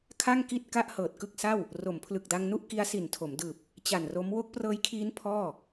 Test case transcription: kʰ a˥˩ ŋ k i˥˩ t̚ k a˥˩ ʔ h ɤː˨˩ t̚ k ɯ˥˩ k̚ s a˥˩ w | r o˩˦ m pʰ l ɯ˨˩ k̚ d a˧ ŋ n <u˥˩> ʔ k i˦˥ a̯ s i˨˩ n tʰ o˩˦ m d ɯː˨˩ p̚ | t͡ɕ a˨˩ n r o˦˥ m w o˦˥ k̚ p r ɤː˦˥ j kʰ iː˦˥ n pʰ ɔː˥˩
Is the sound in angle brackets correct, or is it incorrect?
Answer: correct